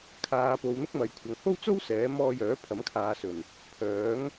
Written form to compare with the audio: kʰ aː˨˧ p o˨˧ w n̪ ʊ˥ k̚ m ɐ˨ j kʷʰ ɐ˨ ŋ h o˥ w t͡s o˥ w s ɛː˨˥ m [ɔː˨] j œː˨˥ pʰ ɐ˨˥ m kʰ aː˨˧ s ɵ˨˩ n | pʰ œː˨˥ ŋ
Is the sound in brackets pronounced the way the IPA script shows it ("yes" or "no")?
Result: no